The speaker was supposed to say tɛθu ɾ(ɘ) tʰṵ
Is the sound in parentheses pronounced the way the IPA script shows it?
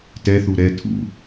no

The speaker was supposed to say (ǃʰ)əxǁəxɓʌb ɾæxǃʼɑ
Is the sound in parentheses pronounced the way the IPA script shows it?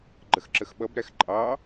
no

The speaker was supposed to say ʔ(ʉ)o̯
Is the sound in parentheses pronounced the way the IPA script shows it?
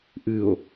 no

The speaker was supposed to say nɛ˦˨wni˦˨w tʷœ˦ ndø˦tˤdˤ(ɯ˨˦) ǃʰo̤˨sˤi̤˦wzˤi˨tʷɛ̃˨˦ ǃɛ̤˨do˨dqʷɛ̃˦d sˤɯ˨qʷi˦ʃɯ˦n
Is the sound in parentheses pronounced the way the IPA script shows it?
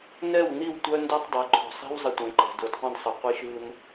yes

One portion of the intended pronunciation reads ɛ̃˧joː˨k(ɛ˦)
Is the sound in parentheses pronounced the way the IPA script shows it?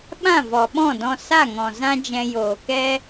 yes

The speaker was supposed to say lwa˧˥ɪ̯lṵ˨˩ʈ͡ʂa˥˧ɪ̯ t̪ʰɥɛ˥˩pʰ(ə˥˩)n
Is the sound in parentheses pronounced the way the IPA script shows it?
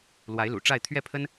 no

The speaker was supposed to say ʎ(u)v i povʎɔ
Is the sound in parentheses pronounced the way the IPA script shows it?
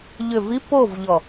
no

